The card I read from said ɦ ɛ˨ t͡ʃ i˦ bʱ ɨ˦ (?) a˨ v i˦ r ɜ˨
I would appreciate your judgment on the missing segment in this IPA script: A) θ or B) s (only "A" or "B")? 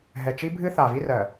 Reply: A